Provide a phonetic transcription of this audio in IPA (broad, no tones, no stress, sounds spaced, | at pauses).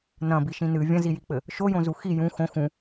n ɐ̃ b i ʃ ĩ n ɨ vʲ ɐ̃ z i j i k͡p ɘ | ʃ o j õ z u x i j ũ x õ x ũ